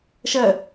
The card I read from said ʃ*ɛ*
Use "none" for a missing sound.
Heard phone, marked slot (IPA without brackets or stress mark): ɜ